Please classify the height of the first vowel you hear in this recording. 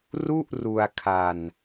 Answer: high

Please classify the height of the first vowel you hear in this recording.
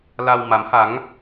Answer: low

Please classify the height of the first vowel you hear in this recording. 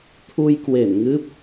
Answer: high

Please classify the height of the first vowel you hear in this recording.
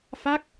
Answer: low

